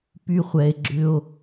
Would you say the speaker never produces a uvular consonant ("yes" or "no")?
no